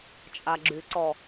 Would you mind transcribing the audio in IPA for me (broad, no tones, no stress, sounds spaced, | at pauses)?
t͡ʃʼ a ɡ͡ǁ y ǀ ɔ